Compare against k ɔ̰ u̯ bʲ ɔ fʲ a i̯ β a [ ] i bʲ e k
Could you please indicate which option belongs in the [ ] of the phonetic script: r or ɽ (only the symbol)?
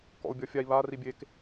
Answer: r